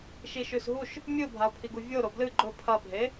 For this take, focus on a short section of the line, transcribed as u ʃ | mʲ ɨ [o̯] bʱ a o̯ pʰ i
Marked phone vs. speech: correct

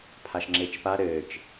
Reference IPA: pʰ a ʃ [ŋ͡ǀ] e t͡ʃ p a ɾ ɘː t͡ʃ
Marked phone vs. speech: incorrect: ŋ͡ǁ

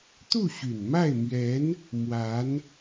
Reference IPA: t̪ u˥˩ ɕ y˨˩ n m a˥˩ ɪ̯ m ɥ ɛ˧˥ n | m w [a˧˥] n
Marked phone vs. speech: correct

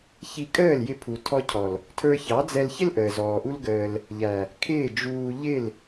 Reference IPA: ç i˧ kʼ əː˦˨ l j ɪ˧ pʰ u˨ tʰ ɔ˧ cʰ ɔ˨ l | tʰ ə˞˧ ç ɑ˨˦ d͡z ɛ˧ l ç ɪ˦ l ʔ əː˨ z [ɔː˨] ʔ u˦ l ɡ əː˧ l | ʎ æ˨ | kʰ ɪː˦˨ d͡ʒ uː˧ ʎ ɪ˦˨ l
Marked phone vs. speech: correct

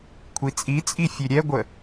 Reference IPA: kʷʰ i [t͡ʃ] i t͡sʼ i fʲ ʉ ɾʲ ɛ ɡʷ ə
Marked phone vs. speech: incorrect: t͡sʼ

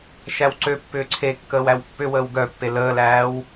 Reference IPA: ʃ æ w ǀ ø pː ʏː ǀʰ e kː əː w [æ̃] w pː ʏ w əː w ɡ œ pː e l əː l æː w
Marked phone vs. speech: incorrect: æ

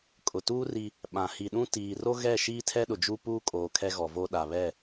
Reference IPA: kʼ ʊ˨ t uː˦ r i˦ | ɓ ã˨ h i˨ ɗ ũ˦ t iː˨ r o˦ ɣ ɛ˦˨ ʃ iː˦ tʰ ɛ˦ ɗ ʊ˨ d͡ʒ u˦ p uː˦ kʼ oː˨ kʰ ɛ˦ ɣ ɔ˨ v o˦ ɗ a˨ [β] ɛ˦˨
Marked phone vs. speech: correct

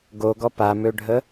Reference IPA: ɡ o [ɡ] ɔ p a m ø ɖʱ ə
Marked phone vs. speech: correct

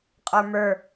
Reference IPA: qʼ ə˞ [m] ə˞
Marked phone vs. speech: correct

